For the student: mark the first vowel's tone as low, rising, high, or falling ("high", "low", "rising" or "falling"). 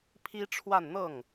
high